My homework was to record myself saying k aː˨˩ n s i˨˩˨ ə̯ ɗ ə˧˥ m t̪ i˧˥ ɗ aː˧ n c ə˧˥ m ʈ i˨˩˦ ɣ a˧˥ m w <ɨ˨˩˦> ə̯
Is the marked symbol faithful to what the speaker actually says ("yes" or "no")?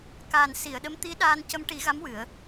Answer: yes